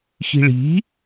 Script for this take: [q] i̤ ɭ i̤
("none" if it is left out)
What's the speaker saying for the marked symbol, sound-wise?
x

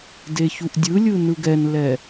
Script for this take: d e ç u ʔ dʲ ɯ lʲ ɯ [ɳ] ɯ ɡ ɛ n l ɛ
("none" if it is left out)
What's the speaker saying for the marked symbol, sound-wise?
n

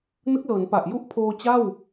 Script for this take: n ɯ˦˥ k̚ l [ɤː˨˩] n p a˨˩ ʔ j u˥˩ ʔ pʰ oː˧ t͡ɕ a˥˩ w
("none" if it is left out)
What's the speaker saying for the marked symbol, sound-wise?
ɤː˩˦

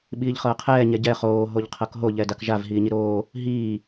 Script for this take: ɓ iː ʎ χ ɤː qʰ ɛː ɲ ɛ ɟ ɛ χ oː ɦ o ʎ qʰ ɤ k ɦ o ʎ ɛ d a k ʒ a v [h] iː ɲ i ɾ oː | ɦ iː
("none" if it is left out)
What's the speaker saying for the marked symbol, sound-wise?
ɦ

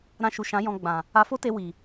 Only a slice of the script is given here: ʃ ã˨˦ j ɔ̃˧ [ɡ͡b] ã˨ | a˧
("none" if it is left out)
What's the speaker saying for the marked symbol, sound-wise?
ɡ͡b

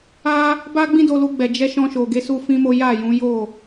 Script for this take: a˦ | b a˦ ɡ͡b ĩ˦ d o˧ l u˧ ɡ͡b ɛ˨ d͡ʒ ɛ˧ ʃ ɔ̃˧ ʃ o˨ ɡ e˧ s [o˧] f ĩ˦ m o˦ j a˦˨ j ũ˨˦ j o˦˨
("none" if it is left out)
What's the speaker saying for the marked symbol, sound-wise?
u˧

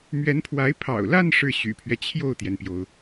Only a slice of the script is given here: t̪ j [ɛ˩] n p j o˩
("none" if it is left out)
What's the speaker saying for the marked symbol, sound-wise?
ɛ˩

